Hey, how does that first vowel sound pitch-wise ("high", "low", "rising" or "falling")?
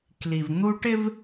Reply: low